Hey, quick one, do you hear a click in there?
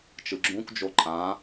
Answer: yes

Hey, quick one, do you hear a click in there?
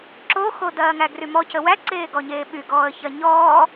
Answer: yes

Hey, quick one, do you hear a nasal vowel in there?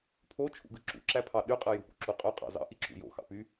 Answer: no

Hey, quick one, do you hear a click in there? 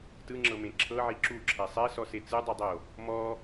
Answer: yes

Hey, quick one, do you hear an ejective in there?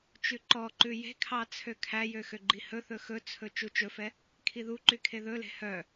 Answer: no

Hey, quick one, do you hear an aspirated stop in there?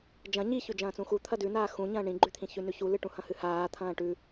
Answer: yes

